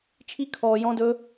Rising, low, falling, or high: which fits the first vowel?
high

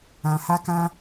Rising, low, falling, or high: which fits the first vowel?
low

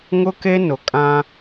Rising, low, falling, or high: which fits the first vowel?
high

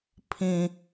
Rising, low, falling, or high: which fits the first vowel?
low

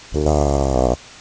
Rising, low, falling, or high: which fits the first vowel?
low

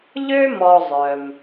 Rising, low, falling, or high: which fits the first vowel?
high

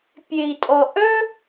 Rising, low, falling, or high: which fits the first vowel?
low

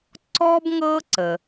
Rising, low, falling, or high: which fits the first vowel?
high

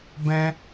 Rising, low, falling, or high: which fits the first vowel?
high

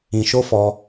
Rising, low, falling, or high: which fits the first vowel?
low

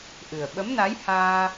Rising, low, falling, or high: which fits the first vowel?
low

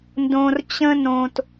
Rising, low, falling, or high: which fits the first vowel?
low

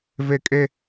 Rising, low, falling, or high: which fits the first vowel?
high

